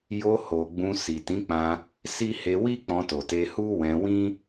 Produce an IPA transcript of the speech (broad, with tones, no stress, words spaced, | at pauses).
jo˧ho˨ ɡ͡bũ˧si˨ tĩ˨˦k͡pã˧ | si˦ he˧wi˦ k͡pɔ̃˧to˨te˧ hu˦wɛ̃˧wĩ˦